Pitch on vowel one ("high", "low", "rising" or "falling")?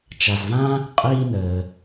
low